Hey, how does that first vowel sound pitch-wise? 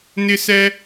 high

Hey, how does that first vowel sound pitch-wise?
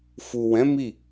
low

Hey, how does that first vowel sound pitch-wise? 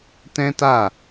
high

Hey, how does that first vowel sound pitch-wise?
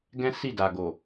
high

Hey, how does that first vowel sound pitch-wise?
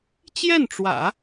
falling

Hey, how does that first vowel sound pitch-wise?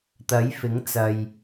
rising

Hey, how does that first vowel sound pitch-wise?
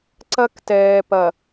high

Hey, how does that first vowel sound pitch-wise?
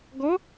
rising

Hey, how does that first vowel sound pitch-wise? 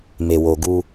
low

